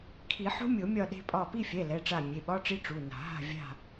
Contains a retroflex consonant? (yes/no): yes